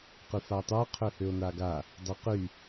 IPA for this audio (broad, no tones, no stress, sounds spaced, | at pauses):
q y f a tˤ œ qʰ ø h ø o̯ n a ɡ a | dˤ ɛ q y